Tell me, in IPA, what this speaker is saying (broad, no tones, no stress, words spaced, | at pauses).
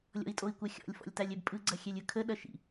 lʲɔ̰i̯tʼoi̯kʷɐxʲɔ̰lʲ fɔ̰lʲtalʲɛbpʼɯ ɡ͡ǀɐxʲɛlʲɯkʰə ɗɐʃḭ